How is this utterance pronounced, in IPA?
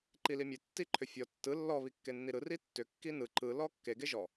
ǃ i l i mʲ e tː i ǃʰ ʏ fʲ ɔ tː ɯ lː ɔ β i kː e nː i ɾ ɯ r i tː ʏ kː i n ɯ ǃ ɯ l ɔ kː e ɡ e ʒ ɔ

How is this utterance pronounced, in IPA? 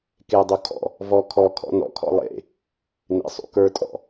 k e dˤ u kʰ ɔ̰ | v ɔ kʰ ɔ kʰ ɔ̰ n ɔ̰ kʰ ɔ̰ lˠ ḛ | n ḛ sˤ ṵ k ə˞ tʼ ɔ̰

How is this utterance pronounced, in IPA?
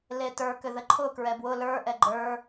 l e t ə˞ k ʏ ð ə ǃʰ ʊ k ɹ ɛ b w ʊ l ə˞ ʔ ɛ ɡ͡ǃ ə˞

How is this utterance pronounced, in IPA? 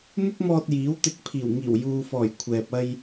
n̪ ʊ˥ k̚ m ɔː˧ t̚ j iː˨˥ w t̪ ɪ˨˥ k̚ pʰ iː˨˩ w ŋ iː˨˩ w j uː˨ f ɔː˨˩ j kʷʰ ɛː˨ p̚ ɐ˧ j

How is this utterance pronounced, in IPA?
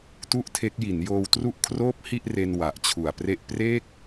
t u˥˩ ʔ tʰ e˦˥ k̚ j i˩˦ n j oː˧ w t r u˥˩ ʔ kʰ r oː˦˥ p̚ h i˥˩ ʔ r e˧ n w a˨˩ ʔ t͡ɕʰ u˨˩ a̯ p r e˥˩ ʔ p r e˥˩ k̚

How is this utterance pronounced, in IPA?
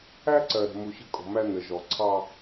æ˦ ǀ ɜ˨ ɾ ə̤˨ m u˨ ɕ ə̤˦ kʼ ɔ̤˨ m æ˦ n ə˨ ʒ ɔ˨ ǀʰ ɑ˦

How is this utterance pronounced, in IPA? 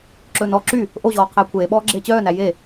ǁ ɵː n ɔ ǁ y | ʔ o ʑ ɔː qʰ eː kʷʰ eː ɓ ɔː ɡ͡ǁ eː t͡ɕ œː n æ j e

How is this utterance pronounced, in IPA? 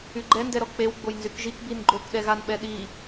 y ɡ͡ǃ ɛ n d ɛ ɾ ɔ k͡p e w ɡ͡b o j n z y k ʒ i k b i n ɡ͡ǃ o k ɗ ɛ ɣ a n ɓ ɛ ɗ i

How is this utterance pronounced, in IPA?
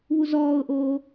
β u z ɔː ʊ̯ ʔ oː

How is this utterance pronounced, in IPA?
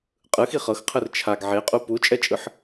qʼ ɯ x i χ ɤ x qʰ ɯ r t͡ʃʰ a ɡ ʕ e qʼ u p u t͡ʃʼ ɛ t͡ʃʼ ɯ ħ

